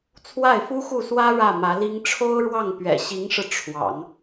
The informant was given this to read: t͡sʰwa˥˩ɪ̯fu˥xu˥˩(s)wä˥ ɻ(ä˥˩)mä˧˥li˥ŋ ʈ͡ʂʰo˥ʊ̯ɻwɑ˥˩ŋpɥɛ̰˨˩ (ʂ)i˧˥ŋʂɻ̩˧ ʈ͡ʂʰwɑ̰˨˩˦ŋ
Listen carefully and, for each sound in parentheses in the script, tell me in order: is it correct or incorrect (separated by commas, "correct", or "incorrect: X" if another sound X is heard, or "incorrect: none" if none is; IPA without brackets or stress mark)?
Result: correct, correct, incorrect: ɕ